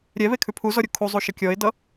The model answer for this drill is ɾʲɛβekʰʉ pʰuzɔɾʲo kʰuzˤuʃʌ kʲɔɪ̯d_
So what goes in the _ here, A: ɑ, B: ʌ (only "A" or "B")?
B